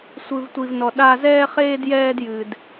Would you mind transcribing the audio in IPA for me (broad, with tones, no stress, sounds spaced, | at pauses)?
sʷ ɨ˦ v tʷ i˦ v n ɔ˦ ɗ a˦ z ɛː˥ χ eː˥ d j ɛː˥ d j ɨ˥ d